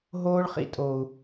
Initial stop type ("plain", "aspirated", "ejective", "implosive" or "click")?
ejective